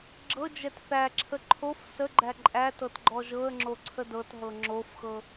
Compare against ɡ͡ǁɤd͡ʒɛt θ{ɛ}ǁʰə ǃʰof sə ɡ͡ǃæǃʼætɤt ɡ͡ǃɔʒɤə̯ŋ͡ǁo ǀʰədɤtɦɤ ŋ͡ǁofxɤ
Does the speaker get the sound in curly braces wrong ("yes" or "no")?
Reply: yes